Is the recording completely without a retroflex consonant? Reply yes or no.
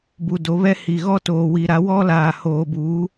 yes